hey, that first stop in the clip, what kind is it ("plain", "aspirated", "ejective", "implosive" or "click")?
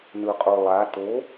ejective